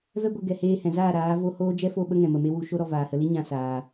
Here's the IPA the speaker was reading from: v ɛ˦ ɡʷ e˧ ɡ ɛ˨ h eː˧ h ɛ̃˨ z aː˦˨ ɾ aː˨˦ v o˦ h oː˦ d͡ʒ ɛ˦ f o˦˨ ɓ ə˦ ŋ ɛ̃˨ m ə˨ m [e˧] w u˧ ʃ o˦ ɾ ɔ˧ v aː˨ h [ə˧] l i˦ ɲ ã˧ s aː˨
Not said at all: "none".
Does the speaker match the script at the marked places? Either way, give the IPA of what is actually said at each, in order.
e˦, ə˧

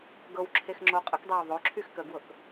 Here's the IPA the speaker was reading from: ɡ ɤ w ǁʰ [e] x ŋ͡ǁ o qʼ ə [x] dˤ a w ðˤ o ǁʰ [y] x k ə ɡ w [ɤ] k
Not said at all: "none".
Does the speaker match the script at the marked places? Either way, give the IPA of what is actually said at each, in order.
e, k, y, ɤ

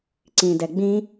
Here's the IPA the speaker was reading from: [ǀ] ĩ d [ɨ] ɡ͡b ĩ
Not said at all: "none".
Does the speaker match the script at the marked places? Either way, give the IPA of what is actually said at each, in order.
ǀ, ɛ

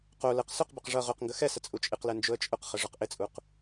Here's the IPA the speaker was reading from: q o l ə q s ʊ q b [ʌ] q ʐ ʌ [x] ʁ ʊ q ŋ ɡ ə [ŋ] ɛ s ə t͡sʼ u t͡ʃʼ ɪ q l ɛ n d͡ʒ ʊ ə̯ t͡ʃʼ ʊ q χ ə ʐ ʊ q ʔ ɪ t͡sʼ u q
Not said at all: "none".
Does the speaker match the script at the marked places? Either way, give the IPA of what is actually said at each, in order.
ʌ, none, x

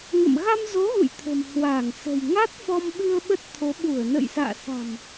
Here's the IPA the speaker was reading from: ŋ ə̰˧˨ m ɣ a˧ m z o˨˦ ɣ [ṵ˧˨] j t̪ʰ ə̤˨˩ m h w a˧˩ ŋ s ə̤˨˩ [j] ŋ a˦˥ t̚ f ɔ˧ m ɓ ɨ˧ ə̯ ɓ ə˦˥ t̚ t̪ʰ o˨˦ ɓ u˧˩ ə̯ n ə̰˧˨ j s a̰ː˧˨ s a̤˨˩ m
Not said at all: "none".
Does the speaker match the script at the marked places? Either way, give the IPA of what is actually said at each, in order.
ṵ˧˨, j

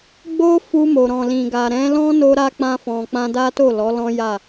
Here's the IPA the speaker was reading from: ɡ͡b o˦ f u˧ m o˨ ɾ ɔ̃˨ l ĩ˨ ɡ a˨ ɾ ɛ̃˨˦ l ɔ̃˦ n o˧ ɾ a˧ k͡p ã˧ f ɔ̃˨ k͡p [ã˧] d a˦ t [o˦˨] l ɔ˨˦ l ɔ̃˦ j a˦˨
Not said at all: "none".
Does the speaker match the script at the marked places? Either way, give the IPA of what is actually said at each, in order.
ã˧, o˦˨

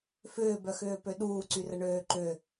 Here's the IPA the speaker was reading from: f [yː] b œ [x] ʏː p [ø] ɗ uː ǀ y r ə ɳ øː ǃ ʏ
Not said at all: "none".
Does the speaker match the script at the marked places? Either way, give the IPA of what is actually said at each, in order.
ʏː, x, ø

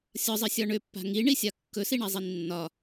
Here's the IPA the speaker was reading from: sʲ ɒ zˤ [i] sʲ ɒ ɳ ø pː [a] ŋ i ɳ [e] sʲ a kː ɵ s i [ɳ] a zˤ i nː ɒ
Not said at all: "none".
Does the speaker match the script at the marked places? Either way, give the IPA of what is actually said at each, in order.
i, a̤, i, ɳ

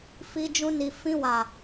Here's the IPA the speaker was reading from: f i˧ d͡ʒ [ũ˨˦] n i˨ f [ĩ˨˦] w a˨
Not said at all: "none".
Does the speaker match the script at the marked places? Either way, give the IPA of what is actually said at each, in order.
ũ˧, ĩ˧

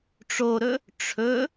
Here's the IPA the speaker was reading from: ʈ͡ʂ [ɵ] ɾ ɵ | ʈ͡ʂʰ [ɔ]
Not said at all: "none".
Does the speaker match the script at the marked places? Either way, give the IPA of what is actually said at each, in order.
o, ɵ

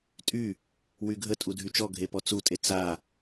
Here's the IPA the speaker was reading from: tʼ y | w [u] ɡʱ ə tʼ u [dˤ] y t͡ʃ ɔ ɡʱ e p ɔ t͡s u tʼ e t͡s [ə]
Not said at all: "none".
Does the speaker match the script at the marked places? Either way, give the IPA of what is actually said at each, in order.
y, dʱ, a

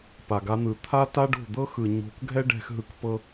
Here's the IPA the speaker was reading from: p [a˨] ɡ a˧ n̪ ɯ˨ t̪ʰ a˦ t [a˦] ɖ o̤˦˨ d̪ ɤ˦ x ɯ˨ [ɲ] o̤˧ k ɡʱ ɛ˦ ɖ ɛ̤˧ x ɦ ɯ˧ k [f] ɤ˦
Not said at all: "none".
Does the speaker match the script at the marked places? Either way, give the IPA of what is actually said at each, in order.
a˨, a˦, ɲ, p

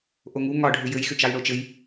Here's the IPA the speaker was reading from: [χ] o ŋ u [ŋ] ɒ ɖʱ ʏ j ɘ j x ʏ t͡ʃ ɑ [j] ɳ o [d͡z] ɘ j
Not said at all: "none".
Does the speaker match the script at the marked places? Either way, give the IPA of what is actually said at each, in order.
ʔ, ŋ, j, t͡ʃ

